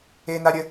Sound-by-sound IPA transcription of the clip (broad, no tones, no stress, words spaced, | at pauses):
en̪aɾʲə